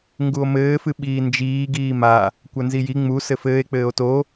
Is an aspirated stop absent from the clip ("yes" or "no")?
yes